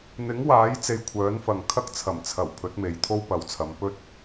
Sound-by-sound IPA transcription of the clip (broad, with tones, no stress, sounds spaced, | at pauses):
n̪ ɪ˨˥ ŋ w aː˨˥ j t͡s e˧ j kʷʰ œː˨˥ n f ɐ˨ ŋ kʰ ɐ˥ k̚ t͡sʰ ɐ˨˩ m t͡sʰ ɐ˨˩ w pʰ ɵ˨˥ t̚ m e˨˧ j t̪ʰ o˥ w p ɐ˨ w t͡sʰ ɐ˨˧ m p ɵ˥ t̚